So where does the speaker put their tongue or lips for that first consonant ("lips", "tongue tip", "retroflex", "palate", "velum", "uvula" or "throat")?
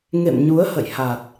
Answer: velum